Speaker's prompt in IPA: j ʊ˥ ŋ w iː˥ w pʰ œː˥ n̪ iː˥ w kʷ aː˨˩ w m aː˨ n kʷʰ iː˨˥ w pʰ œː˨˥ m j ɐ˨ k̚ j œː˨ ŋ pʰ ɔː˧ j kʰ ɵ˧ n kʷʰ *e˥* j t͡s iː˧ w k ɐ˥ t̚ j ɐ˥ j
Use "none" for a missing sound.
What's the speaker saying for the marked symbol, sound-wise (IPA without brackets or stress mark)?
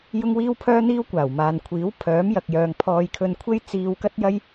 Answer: e˥